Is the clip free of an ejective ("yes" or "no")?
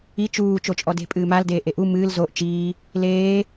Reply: no